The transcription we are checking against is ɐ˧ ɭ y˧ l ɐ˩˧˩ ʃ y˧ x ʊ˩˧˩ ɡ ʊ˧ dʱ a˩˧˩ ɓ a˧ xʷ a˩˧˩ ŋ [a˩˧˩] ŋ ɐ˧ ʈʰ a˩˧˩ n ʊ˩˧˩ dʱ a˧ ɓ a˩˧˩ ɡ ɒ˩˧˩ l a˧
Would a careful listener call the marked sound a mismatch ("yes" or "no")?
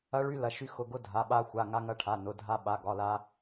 yes